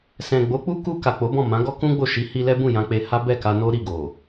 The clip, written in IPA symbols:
sɛ̃˨ɡ͡bo˨˦k͡pu˦ ku˧ ka˨k͡po˨˦bɔ̃˦˨ mã˨˦ɡɔ˦kũ˦ɡ͡bo˦˨ ʃi˨˦hi˧ lɛ˦bũ˦˨jã˧k͡pe˧ ha˦ bɛ˦˨ka˧no˦ ɾi˦˨ɡo˨

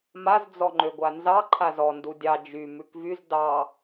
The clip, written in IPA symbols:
maz d͡zɔŋ͡ǃøɡʷanzɑ ǃʰazɔ ndudʲɑ d͡ʒy mʉkvyz dɑ

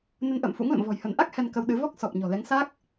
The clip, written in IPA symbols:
nə˧nʔə̰ː˧˨mfṵ˧˥ŋlə̰˧˨m vɔ̤˨˩jhə˧˩nʔa˦˥k̚ hɛ˧nkə˧wɗɨ˨˦ vɔ˦˥k̚ sɔ˨˩p̚ ɲɔ̤˨˩lɛ˨˦ŋsa˦˥k̚

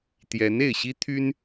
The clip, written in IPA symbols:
t̪jɛ˧˥ne˥˩ɪ̯ ɕi˥t̪ʰy˥n

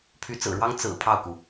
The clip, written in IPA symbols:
pʰy˧˥t͡sɹ̩˨˩ɻwɑ˥ŋ t͡sɹ̩˨˩ pʰɑ˥˩ʊ̯ku˩

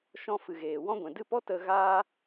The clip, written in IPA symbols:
ʃɔ̃˧fɨ˨ɣeː˨ wɔ̃˧ɡʷɛ̃˨dɨ˦˨pɔ˦ tə˧ ɣa˧

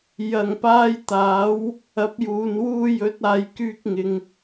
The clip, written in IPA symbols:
jɐ˨˩ŋpaː˧jt̪aː˨˥w | ɐ˨˥p̚juː˨n wuː˧jɵ˨˥t̚ aː˨jkyː˧k̚ŋɪ˨ŋ

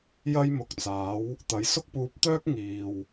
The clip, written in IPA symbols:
jɐ˥jmʊ˨˥k̚t͡saː˨˥w | t̪ɐ˨˥jsʊ˥k̚puː˧p̚t̪œː˥k̚ ŋiː˨w

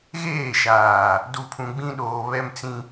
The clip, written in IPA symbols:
ɣeː˦˨ʃaː˨ | du˨pʰũ˨ɡ͡bĩ˦ɗoː˨ βɛ˦m t͡sĩ˦

